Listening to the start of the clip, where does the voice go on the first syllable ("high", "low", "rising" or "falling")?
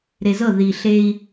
low